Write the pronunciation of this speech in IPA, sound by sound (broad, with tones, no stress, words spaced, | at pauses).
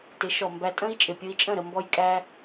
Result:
tɪ˩˥ʃɔ˩ mbæ˧tʼə̃˥i̯ t͡ʃʼɪ˩pʲʊ˧i̯t͡ʃʼə̃˥˩ɾə˧ mbɔ˧jkʼæ˧